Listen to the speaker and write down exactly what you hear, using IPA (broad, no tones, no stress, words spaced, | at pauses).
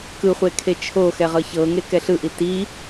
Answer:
kɯχʷe kʰet͡ʃʰoxɛ ʁɤçɤŋe kɛɬɯʔi ti